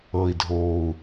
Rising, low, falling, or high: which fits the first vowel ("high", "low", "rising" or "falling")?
low